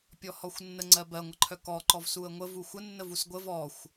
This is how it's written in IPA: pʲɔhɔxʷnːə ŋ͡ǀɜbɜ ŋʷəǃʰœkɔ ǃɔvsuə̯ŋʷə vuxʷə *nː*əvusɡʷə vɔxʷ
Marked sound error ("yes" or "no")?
no